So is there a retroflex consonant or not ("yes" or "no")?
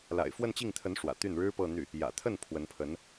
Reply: yes